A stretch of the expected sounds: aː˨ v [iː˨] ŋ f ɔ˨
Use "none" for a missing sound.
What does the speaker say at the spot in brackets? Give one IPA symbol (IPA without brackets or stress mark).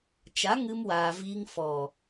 iː˧